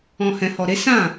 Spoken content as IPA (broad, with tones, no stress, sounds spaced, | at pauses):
ɔ̃˨ h ɛ̃˨ h ɔ˨ ɾ e˨˦ s ã˦˨